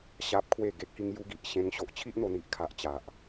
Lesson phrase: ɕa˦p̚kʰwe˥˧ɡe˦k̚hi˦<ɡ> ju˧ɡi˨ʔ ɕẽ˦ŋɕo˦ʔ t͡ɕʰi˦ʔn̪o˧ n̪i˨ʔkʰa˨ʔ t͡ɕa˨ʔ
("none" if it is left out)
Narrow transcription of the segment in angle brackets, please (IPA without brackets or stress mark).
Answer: ŋ